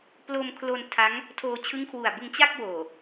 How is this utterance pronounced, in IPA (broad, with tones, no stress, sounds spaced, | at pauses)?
p l o˧ m kʰ l o˧ n tʰ a˦˥ ŋ | tʰ oː˧ t͡ɕʰ ɯ˦˥ ŋ kʰ w u˨˩ a̯ b ɯ˧ ŋ t͡ɕ a˥˩ k̚ w oː˨˩